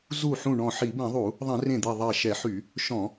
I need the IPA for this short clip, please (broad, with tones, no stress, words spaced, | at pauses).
zu˧˩ħũ˧˩ɳɔ̃˧˩ ħi˧˩˧bɛ̃˧˩˧ðˤu˧˩˧ | ðˤẽ˧˩˧rẽ˧˩d̪i˧˩ ðˤɛ˧˩ʃɛ˧˩˧ħy˧˩˧ | ʃɔ̃˧˩˧